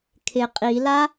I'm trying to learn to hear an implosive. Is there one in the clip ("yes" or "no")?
no